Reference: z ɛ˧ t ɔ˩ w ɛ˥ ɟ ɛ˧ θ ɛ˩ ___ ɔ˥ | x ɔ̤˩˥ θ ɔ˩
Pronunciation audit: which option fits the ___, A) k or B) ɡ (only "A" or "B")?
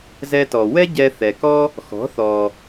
A